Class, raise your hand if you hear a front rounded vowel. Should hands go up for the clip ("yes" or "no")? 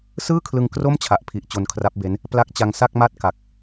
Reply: no